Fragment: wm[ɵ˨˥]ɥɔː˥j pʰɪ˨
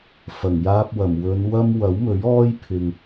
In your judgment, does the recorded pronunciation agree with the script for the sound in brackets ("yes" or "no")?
yes